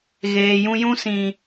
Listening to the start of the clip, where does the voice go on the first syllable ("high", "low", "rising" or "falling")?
low